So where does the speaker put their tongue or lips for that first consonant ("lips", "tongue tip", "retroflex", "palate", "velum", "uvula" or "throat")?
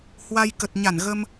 throat